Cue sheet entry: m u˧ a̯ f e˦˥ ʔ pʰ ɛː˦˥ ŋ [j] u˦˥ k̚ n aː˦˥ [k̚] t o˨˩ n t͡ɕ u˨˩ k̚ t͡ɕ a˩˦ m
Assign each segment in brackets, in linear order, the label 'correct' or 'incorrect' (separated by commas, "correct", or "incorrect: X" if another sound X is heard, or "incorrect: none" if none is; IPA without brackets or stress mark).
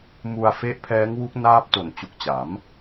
incorrect: w, incorrect: p̚